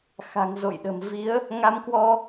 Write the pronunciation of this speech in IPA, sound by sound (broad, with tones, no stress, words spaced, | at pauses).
xa̤˨˩ŋzo̰˧˨jɗə̤˨˩m vi˨˦ə̯ | ŋa˧mkwɔ˧